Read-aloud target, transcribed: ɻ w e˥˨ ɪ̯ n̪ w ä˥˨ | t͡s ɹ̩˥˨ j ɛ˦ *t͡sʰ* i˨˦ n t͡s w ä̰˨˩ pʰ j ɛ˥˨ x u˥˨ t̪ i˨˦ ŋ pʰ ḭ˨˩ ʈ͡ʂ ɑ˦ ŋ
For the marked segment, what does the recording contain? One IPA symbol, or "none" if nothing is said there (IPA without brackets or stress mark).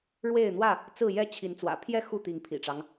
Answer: t͡ɕʰ